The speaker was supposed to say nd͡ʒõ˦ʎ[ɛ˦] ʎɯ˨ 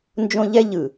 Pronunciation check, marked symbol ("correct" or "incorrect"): correct